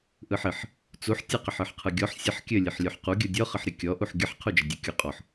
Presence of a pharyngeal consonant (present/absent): present